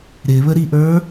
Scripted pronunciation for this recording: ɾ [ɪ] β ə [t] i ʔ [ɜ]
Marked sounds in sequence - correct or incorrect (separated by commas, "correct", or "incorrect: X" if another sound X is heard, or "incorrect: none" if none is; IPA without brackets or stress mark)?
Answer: correct, incorrect: ɾ, incorrect: ə˞